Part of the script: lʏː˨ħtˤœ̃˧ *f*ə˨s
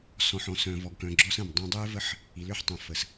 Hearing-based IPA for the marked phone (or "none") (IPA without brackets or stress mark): f